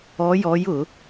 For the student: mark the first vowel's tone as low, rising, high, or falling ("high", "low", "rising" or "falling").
rising